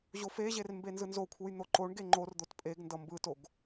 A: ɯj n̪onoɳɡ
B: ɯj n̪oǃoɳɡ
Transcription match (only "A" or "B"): B